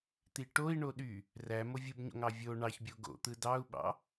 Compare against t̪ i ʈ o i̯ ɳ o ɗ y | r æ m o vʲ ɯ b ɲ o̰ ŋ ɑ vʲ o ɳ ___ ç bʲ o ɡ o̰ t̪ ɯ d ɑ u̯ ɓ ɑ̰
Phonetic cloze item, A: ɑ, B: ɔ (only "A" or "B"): A